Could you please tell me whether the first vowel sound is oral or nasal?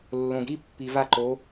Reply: nasal